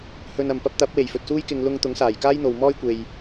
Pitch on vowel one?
low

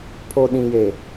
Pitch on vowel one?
low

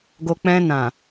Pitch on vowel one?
low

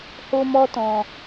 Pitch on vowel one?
high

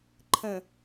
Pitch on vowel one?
low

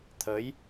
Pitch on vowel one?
rising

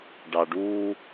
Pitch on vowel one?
low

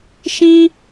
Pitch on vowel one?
high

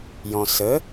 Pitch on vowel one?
low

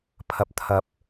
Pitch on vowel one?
rising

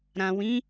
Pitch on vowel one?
low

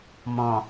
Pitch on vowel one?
low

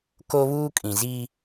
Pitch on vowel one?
high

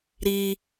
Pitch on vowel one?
high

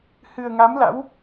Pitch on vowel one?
low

